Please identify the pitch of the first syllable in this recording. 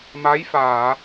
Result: rising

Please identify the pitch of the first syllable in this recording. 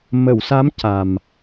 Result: low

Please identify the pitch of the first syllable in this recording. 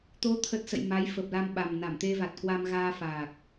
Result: rising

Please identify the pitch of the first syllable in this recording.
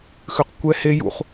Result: low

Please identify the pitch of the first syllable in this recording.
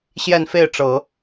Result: falling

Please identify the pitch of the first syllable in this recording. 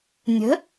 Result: rising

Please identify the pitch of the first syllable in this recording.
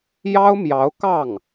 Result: high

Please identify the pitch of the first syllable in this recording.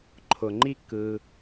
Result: low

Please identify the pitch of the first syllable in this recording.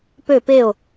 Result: falling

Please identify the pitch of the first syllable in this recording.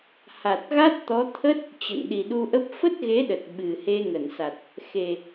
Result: low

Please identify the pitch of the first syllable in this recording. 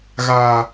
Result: low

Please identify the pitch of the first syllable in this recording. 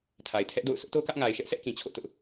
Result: low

